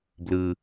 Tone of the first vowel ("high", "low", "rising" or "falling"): low